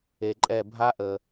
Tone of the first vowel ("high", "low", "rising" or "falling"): low